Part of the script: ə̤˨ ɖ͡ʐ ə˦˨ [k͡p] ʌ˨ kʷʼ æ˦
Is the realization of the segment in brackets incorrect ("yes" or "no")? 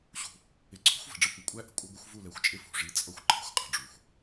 yes